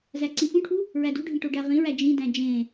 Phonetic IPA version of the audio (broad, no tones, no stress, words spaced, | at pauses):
zæǀĩfũʈʰu | ɹædṳɖʱĩ ʈoɖæʁĩɹæ d͡ʒĩdæ̃ d͡ʒẽ